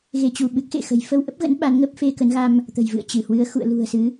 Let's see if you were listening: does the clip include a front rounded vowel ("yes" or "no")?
no